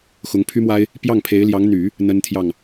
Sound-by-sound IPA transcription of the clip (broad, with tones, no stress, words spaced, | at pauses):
xʊ˧˥ŋpʰy˥mwa˥ɪ̯ | pjɑ˥˩ŋpʰe˧˥ɪ̯ljɑ˧˥ŋn̪y˨˩˦ | n̪ə˥nt̪ʰjɑ˥˩ŋ